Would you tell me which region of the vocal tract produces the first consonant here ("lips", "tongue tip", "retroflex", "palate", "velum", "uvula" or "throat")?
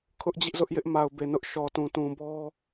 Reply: velum